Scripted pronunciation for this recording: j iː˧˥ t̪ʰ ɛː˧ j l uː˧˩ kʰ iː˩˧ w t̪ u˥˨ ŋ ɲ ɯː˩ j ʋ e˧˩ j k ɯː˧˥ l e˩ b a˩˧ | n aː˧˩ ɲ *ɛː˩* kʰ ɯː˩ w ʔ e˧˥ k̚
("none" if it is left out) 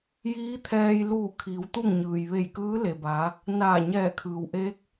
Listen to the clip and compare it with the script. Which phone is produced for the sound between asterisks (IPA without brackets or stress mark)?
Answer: ɛː˧˩